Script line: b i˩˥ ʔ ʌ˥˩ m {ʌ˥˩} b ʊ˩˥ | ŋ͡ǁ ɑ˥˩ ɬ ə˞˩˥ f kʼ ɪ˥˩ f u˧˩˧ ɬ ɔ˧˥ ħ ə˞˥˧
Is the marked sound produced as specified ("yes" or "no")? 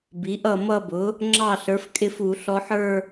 no